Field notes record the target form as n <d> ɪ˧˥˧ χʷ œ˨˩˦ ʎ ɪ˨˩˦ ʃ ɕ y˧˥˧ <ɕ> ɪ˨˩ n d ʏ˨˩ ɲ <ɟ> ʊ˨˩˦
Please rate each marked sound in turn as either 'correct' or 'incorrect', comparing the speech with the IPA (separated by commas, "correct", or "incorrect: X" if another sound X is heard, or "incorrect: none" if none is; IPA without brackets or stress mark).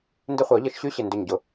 correct, correct, correct